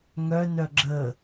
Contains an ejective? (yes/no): no